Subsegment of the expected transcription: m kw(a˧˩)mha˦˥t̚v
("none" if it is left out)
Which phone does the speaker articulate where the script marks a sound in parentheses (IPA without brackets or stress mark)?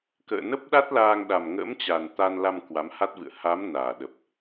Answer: a˨˦